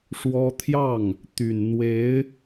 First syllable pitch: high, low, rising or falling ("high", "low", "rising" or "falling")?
high